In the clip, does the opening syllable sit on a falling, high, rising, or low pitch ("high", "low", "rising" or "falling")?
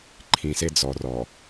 low